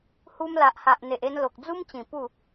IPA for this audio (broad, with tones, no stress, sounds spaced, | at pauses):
h u˧ m l a˨ ʔ h a˨ ʔ n̪ e˨ ʔ e˧ n l o˨ k̚ d͡z u˦ m t͡ɕ ĩ˨˩ p u˥˧